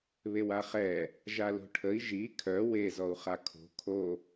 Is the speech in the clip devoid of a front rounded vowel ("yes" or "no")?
no